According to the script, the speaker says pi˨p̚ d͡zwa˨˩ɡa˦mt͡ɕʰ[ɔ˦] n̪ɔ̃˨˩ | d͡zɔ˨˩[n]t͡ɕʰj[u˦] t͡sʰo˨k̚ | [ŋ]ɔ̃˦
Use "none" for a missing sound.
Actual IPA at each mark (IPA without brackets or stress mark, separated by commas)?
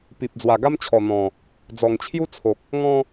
ɔ˨˩, ŋ, u˦, ŋ